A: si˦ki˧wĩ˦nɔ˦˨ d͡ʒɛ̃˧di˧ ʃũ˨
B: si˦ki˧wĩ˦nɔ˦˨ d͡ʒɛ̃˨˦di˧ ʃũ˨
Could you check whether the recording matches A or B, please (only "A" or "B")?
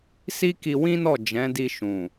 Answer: B